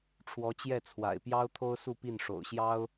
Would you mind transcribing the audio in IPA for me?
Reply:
ʈ͡ʂʰ w ɔ˧˥ t͡ɕ j ɛ˥˩ t͡sʰ w a̰˨˩ ɪ̯ p j ɑ˥ ʊ̯ t̪ʰ o˥ ʊ̯ s u˥˧ p i˥˩ n ʂ o̰˨˩ ʊ̯ ɕ j ɑ˥ ʊ̯

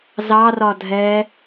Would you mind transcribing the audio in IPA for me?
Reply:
z ɑ r ɒ dʱ ɛ

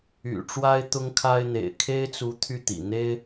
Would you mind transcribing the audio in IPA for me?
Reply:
y̰˨˩ ʈ͡ʂ w a˥ ɪ̯ t̪ ʊ˥ ŋ kʰ a˥ ɪ̯ n̪ ḛ˨˩ ɪ̯ kʰ e˥ ɪ̯ t͡s u˧˥ t̪ʰ y˥˩ t̪ ḭ˨˩ n̪ e˥ ɪ̯

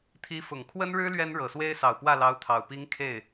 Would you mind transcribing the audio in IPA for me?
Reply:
t̪ʰ i˧˥ f ʊ˨˩ ŋ kʰ w ə˥ n ɻ ɻ̩˥ l ɥ ɛ˥ n ɻ ɤ˨˩ s w e˥ ɪ̯ s ɑ˨˩ ʊ̯ p w ä˥˩ l ɑ˧˥ ʊ̯ t̪ʰ ɑ˨˩ ʊ̯ p i˧˥ ŋ kʰ e˥˩ ɪ̯

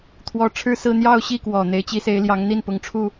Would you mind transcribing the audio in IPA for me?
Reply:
t̪ʰ w ɔ˥ ʈ͡ʂʰ ɻ̩˥˧ s ɹ̩˥˧ n̪ j ɑ˥˧ ʊ̯ ɕ i˥˩ k w ɔ˨˩ n̪ e˧˥ ɪ̯ t͡ɕ i˧˥ s e˧˥ ɪ̯ l j ɑ˧˥ ŋ n̪ i˥˩ n p ʊ˧˥ ŋ ʈ͡ʂʰ u˥˩

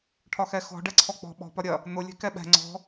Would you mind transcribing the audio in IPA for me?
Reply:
ʈʰ ɒ x ɛ x ɔ̤ ɖ ɛ ǀʰ ɔ k͡p ɔ̤ ɓ ɔ̤ p ɒ ɾʲ ɐ | n̪ ʊ lʲ ɛ̤ k ɛ ɓ ɛ̤ ŋ͡ǀ ɔ̤

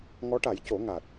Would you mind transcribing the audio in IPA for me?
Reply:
ŋ ɔ˧˥ ʈ a˨˩˦ j c o˨˩˦ ŋ a˨˩ t̚

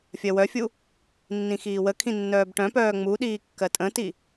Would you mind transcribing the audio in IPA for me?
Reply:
fʲ ɜ w œ fʲ u | nː ĩ x iː w ə kʰ ĩ nː œː b ʈ œ̃ p œː ŋ͡m u ɗ iː kː ɜ tʼ ə̃ t i

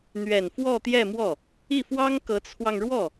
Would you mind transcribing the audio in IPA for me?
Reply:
n̪ ɥ ɛ˨˩ n f w ɔ˥˧ t̪ j ɛ˥˧ m w ɔ˥˩ | i˥˩ f w ɑ˥ ŋ k ɤ˧˥ t͡sʰ w ɑ˧ ŋ ɻ w ɔ˥˩

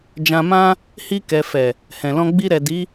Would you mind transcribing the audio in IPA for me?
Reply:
d͡ʒ ã˧ m ã˦ | h i˧ k ɛ˨ f ɛ˨ | h ɛ̃˨ l ɔ̃˧ ɡ͡b i˧ ɾ ɛ˨ d i˨˦

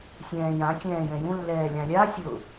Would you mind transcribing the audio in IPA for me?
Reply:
sʲ ɛ̃ː j ã kʲ ɛ̃ː j ɛ̃ j ũ lː ɛː lʲ ɑ̃ lʲ a sʲ ʊ

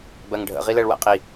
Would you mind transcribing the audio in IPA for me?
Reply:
b ɜ ŋ ɖʱ ə̰ ʁ i l ɜ ɭ w æ̰ qʼ i

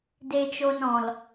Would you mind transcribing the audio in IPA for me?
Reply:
d e˧ t͡ʃ o˧ n ɔ̃˨ l

